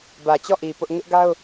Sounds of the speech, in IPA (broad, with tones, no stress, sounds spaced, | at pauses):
b ä˨ t͡ɕ ɔ˦˨ ʔ i˨ p ʊ˦ ʔ ŋ ɪ˦ ʔ ɡ a˦ ʊ̯